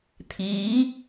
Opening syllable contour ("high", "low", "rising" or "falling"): rising